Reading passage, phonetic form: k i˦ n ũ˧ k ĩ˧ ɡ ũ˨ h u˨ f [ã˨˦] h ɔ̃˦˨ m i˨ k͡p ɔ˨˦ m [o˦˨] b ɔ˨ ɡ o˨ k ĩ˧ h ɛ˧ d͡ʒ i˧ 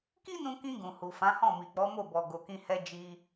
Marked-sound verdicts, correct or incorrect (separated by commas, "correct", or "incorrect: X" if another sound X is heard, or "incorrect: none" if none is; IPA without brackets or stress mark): correct, correct